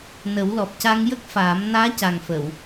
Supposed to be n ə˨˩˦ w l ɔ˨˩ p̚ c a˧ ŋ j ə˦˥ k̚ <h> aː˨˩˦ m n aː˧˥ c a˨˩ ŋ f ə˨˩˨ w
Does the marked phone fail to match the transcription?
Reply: yes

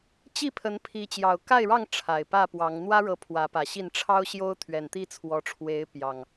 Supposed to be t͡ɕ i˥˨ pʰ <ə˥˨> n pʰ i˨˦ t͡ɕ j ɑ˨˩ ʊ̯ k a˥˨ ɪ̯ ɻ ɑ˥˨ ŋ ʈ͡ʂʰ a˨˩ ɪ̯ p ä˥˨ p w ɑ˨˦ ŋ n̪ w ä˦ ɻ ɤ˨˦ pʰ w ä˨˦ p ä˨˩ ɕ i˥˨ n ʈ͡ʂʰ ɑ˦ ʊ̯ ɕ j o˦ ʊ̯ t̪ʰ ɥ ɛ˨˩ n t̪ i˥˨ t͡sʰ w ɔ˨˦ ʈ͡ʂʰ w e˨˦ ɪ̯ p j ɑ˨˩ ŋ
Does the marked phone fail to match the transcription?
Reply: yes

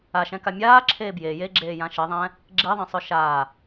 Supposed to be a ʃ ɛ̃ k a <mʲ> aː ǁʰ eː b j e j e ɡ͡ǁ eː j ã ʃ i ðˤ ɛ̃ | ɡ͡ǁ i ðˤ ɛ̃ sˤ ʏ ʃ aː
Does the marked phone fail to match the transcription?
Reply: no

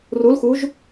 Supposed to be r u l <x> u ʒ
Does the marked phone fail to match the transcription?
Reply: no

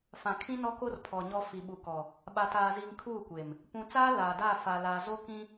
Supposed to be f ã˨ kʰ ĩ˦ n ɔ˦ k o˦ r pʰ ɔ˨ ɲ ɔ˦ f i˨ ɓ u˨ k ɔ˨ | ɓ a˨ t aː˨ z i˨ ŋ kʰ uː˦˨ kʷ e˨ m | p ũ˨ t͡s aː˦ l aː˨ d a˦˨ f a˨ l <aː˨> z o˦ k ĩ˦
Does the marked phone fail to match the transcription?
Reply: no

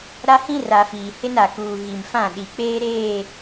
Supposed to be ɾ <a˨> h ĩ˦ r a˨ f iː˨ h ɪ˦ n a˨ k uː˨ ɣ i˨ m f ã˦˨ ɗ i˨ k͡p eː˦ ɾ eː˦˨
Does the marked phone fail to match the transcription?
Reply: yes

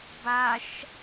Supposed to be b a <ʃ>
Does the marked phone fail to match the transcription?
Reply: no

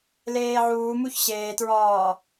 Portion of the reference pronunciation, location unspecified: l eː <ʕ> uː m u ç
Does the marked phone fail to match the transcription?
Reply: no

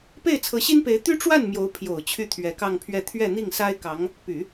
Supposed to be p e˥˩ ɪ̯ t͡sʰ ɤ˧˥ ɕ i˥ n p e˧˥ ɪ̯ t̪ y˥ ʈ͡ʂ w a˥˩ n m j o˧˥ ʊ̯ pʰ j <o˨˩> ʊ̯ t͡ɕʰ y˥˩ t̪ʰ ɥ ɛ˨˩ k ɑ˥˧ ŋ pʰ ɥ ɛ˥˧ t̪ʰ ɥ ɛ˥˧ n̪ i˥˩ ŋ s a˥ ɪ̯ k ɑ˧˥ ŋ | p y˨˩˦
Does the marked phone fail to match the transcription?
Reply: no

